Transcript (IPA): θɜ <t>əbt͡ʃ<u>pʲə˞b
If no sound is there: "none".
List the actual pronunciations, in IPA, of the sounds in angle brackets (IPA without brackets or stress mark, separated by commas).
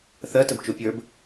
t, u